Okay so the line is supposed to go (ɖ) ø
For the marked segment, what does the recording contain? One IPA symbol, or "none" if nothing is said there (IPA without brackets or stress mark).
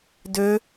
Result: d